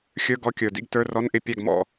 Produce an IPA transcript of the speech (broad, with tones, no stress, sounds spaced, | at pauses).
xʲ ə˞˧˥˧ ɡ ɔ˧˥ kʲ ə˞˨˩ d ḭ˥˨ ɡ t ə˞˧˥˧ r ɔ˧˥˧ n ʔ ɪ˥˨ pʲ æ˥˨ ɡ m ɔ̰˨˩